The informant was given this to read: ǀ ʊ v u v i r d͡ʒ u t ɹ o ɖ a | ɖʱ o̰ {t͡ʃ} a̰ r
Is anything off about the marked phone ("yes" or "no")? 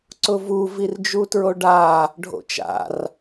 no